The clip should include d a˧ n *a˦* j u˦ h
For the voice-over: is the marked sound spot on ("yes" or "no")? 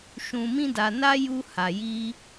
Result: yes